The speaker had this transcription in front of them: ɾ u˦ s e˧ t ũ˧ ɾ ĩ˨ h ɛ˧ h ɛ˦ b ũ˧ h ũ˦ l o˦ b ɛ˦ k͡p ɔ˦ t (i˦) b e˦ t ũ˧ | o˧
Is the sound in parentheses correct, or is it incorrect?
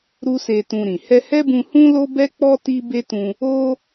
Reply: correct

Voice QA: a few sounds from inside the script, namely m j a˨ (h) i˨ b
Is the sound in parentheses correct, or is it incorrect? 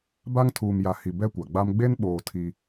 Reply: correct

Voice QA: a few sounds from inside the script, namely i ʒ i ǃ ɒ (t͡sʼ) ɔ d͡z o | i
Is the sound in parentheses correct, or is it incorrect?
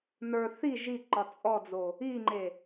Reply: correct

